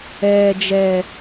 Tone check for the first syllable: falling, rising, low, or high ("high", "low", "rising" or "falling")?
high